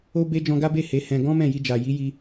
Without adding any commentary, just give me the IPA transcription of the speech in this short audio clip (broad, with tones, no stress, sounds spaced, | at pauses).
o˦ b e˦ d͡ʒ ɔ̃˧ ɡ a˦ b e˦˨ h e˨˦ h ɛ̃˧ ɡ ɔ̃˦ m ɛ̃˦˨ j i˧ d͡ʒ a˨ j i˨˦ j i˧